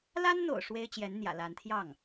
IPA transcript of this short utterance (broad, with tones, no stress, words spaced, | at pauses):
la˥nn̪o̰˨˩ʊ̯ ʂwe˥ɪ̯t͡ɕjɛ˧˥nn̪jä̰˨˩ la˧˥nt̪ʰjɑ˥˩ŋ